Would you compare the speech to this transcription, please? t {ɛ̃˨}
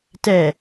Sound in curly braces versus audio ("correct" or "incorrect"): incorrect